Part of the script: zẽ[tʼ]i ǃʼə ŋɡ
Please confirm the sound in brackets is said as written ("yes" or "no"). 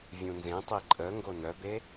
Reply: no